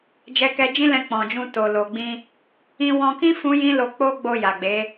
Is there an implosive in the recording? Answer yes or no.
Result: no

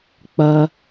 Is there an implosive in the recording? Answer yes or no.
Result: no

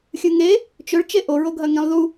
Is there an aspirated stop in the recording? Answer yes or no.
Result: no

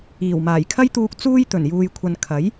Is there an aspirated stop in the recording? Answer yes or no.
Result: yes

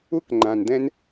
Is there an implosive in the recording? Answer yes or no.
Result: no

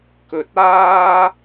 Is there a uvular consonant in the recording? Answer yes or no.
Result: no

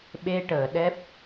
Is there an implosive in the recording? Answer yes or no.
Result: yes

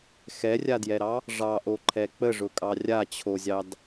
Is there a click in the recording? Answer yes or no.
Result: yes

